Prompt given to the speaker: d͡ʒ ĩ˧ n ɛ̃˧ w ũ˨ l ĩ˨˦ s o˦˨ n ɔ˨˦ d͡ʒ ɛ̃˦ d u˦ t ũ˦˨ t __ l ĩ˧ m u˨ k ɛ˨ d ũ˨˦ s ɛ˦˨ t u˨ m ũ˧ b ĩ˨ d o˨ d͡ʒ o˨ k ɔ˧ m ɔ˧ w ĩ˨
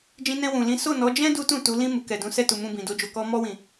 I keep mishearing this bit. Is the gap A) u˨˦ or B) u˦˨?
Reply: A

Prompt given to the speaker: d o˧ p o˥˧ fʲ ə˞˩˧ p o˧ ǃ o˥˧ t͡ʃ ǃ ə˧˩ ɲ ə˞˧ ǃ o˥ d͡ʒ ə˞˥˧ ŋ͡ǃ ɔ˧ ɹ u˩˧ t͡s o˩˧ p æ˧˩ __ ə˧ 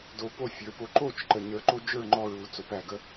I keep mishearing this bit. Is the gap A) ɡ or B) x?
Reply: A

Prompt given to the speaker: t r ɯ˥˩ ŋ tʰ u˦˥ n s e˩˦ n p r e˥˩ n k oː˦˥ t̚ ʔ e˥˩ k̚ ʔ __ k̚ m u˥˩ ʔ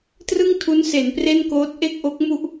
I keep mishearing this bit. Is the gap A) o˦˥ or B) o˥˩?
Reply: A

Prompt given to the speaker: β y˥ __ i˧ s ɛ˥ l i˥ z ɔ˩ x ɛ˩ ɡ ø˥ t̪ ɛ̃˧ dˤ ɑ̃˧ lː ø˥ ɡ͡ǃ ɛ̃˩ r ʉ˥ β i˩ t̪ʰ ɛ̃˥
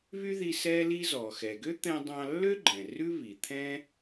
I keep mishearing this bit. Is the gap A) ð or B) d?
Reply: A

